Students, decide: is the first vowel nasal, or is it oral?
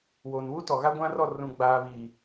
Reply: oral